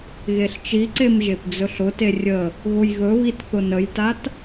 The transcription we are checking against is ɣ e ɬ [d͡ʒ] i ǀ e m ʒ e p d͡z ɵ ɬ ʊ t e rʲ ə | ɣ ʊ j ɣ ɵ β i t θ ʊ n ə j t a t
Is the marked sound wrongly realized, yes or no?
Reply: yes